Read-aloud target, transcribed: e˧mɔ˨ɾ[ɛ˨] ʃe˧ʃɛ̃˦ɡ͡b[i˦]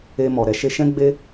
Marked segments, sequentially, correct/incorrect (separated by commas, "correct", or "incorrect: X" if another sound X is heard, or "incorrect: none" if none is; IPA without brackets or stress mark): incorrect: ɛ˧, incorrect: e˦